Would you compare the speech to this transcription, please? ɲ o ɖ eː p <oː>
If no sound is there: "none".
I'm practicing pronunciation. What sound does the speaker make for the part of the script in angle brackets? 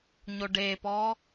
ɔː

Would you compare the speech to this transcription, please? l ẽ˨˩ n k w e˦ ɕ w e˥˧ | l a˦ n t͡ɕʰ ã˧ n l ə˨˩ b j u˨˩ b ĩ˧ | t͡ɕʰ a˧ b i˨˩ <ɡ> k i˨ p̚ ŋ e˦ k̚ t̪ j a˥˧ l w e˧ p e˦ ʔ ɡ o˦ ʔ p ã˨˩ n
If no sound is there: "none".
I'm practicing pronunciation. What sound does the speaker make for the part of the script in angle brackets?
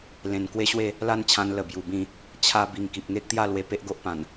ŋ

